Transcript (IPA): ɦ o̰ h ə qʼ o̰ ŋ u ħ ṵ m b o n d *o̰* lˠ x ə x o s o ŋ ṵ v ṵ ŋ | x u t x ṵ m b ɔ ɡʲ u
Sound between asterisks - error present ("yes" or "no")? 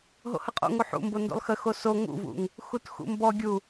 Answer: no